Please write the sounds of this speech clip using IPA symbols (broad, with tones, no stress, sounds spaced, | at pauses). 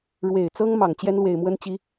ɻ w e˨˩ ɪ̯ t͡s ɤ˥ ŋ m ɑ˨˩ ŋ t͡ɕ j ɛ˥ n l w e˨˩ ɪ̯ m w ə˥ n t͡ɕ i˧˥